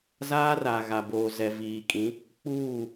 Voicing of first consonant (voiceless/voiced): voiced